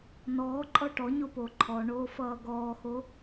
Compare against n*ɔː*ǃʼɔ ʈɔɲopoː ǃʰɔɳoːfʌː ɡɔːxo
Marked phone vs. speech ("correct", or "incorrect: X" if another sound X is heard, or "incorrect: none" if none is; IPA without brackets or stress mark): correct